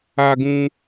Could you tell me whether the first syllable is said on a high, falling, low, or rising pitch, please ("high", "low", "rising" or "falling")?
high